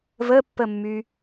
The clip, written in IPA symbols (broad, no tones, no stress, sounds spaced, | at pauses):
v ə pː ə mː y